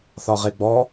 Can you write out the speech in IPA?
θ ɒ ʁ e ɡ͡b ɔ

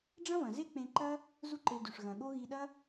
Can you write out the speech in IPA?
ɖ͡ʐ ɐ̃˦ v ɐ̃˨ z e˦ k͡p ẽ˧ ǃ ɐ˦ | z u˦ ǃ e˧ d ʉ˨ ʂ ɣ ɐ̃˨ ɠ o˦ ɣ i˧ ɗ ɐ˦

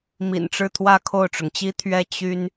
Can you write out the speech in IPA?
m ḭ˨˩ n ʈ͡ʂ ɻ̩˥˧ t̪ʰ w ä˥˧ kʰ o˥˩ ʊ̯ ʈ͡ʂ ʊ˩ ŋ t͡ɕ i˥ t̪ʰ ɥ ɛ˥˩ t͡ɕ y˥ n

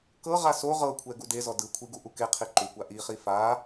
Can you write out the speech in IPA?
k ɤ ʁ a s o ʁ ɤ kʷʰ ɛ ɡ u d e z ɔ d ɯ kʷʰ i ɡ u ʔ u k e qʰ i ǃ u kʷ a ʔ i χ i f a

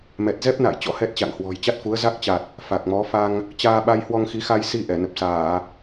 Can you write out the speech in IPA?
m ɛ˨˩ t̚ z ɛ˦˥ p̚ n a̰ː˧˨ j t͡ɕ ɔ̰˧˥ h ɛ˦˥ t̚ t͡ɕ a̰˧˨ ŋ h w ɔ̤˨˩ j t͡ɕ a˦˥ t̚ f u˨˦ ə̯ z a˦˥ k̚ t͡ɕ a˨˩ t̚ | f a˨˩ k̚ m ɔ˨˦ f a˧ ŋ | t͡ɕ aː˧ ɓ a˧ j h w ɔ˧ ŋ x i˨˦ x a˧ j s i˧ ʔ ɛ˧˩ n ə˨˩ p̚ s aː˧˩˨

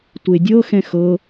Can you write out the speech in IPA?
tʷ e dʲ ɤ x ɛ̃ x ɤ

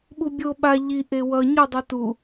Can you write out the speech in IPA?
ɓ u bʲ o ɓ a ʎ i ʔ e w ʌ ɲ u dˤ u t u

